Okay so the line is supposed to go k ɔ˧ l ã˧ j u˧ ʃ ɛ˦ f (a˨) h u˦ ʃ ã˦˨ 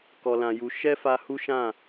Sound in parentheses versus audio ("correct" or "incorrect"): incorrect